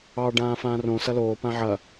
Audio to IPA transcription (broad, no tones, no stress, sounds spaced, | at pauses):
ɑ ɖ ãː f ãː r õ s ɐ l oː p ã ʕ ɐ